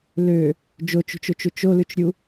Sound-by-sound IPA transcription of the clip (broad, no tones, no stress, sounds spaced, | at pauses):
l ø | d͡ʒ o t͡ʃ ṳ t͡ʃ o t͡ʃ u t͡ʃ o l ʉ t͡ʃ ɾʲ u